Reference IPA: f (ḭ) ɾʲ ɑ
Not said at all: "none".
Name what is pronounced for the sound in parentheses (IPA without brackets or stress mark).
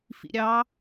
ḭ